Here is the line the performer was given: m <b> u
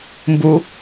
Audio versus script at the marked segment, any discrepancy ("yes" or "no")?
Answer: no